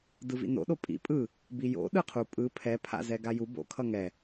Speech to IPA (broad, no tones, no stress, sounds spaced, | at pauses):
d ɯ v ḭ n o̰ ɗ o pʼ ḭ pʼ ɯ | b i j o̰ ɗ ɯ qʰ u pʼ ɯ pʰ ɛ pʰ a̰ z ɛ ɡ a j u b o̰ kʰ ʌ ŋ ɛ